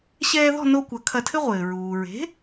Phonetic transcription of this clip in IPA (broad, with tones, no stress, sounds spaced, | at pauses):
ɕ ɛː˧ ð ɔ̤˥˩ n o˧ kʷ ɐ˩˥ kʰ ɐ˧ tʰ ɘ˥ ʁʷ ɘː˩ ɹ uː˩ ɹ e̤˩˥